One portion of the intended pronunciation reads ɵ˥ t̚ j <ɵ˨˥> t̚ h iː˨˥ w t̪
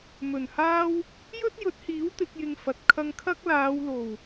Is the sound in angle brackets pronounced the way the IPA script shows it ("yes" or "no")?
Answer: yes